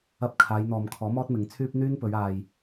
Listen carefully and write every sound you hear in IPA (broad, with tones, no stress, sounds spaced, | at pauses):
ɐ˥ p̚ kʰ aː˨˧ j n̪ ɔː˨ m kʰ ɔː˨˥ m ɔː˥ t̚ m ɪ˨˧ ŋ t͡sʰ yː˥ p̚ n̪ yː˥ n p ɵ˨˧ ɥ aː˨ j